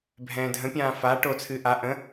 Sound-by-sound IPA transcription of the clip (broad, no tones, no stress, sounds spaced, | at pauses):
bʱ ɛ̃ː dʱ ə̃ pʲ ãː f a ʈ o t͡sʰ ɨ ʔ a ʔ ə̃